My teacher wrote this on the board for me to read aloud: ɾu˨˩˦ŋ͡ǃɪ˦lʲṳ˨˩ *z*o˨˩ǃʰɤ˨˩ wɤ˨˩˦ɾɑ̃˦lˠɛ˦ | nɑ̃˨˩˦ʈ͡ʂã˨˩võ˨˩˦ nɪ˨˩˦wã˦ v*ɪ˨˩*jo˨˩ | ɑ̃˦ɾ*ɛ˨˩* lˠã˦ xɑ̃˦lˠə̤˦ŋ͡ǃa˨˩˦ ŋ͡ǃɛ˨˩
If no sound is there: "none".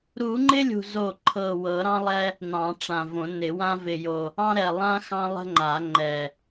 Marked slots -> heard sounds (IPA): z, ɪ˨˩, ɛ˨˩

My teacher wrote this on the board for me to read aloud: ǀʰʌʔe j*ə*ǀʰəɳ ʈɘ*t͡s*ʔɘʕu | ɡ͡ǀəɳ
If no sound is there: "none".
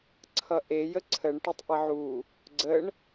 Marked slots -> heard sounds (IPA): ə, tˤ

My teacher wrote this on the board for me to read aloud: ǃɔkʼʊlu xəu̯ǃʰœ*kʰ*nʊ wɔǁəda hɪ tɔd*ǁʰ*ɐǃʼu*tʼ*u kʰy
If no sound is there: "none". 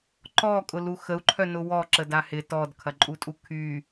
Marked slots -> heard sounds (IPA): none, kʰ, tʼ

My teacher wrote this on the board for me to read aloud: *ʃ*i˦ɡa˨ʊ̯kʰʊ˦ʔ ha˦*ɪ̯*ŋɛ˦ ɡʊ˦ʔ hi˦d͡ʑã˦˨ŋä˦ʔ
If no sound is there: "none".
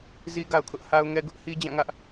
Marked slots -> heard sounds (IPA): z, ʊ̯

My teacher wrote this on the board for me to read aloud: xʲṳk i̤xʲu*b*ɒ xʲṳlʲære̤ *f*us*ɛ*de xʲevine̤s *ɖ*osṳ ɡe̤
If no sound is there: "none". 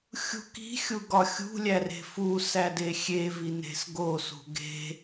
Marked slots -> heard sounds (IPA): ɡ, f, æ, ɡ

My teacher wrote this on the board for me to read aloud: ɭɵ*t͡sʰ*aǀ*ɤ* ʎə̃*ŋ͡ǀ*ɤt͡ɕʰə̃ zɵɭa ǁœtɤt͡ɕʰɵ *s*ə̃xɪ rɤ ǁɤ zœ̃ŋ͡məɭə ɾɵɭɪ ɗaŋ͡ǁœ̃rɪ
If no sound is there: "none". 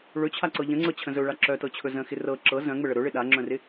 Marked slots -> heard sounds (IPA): t͡ɕʰ, ɤ, ŋ͡ǀ, z

